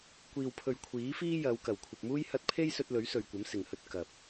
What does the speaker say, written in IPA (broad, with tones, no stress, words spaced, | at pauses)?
kʷiː˨wpʰɵ˨ɥ kʷʰiː˨˥fiː˥ jɐ˨˧w kɐ˨˩wkʷʰɐ˨p̚muː˥j hɐ˧t̚pʰe˥jsɵ˧t̚ lɵ˨˥ɥsɵ˨ɥkʷɐ˨˥m sɪ˨ŋhɵ˥t̚ kɐ˨p̚